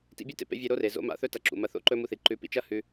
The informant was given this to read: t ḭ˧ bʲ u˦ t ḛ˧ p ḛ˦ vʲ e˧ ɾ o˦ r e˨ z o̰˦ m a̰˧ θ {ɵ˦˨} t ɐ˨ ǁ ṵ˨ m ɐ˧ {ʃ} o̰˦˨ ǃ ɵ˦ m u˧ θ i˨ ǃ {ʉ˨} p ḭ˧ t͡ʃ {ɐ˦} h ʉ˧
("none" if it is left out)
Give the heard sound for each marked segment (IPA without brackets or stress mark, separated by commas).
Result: ɵ˧, θ, ʉ˨˦, ɐ˦